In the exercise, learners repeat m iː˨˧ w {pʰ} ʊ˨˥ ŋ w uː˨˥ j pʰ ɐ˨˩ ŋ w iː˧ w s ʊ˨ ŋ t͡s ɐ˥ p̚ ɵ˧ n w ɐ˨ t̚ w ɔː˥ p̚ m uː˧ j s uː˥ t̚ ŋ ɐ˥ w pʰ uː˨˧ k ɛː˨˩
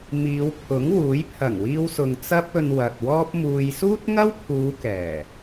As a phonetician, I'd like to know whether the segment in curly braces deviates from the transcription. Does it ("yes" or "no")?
no